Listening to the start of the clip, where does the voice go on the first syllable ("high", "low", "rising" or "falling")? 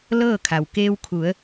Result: falling